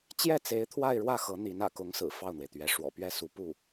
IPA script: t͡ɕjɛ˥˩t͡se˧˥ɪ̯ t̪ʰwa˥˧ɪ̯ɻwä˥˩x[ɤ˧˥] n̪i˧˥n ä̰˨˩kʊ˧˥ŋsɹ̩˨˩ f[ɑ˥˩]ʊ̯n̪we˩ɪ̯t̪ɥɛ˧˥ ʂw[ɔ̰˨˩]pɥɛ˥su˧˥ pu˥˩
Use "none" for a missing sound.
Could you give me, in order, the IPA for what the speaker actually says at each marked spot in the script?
ɤ˧˥, ɑ˥˩, ɔ̰˨˩

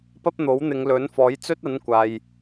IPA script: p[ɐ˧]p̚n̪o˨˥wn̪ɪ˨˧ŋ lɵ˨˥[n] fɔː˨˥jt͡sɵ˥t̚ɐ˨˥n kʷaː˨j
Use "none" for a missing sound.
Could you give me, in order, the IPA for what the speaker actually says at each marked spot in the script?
ɐ˥, n

